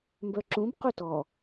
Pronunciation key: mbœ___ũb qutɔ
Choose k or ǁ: ǁ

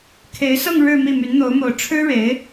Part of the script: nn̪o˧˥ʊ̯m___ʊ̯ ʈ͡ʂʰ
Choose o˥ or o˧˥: o˧˥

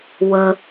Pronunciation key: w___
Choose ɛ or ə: ə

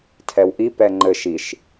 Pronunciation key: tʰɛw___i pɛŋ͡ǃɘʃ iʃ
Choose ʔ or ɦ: ʔ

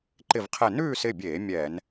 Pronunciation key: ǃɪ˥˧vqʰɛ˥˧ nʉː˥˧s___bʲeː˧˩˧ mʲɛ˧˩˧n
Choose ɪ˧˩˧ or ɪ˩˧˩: ɪ˩˧˩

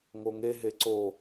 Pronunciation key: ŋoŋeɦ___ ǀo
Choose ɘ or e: e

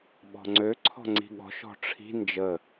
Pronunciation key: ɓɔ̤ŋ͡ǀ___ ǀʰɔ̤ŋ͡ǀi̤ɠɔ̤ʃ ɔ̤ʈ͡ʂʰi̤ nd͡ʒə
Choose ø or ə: ø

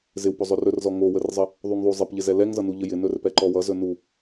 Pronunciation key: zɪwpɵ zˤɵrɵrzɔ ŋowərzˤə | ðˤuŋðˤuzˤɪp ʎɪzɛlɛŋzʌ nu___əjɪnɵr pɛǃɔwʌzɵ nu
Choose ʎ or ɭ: ʎ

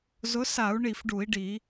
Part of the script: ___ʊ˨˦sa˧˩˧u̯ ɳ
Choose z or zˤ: z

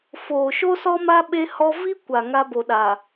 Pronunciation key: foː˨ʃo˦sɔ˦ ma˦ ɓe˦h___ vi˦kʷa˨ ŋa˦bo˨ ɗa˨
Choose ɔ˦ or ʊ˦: ɔ˦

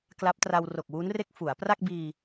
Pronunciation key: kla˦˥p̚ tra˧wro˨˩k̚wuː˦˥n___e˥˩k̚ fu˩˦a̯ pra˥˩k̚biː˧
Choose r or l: r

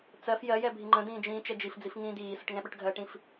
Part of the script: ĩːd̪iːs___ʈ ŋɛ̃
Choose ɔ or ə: ə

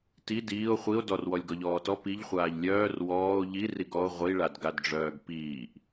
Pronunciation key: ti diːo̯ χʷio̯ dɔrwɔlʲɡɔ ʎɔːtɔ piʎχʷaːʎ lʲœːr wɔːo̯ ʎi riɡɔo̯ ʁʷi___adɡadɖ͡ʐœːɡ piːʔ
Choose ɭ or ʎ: ɭ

